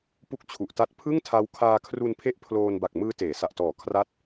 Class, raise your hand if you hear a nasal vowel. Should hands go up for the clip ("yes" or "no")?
no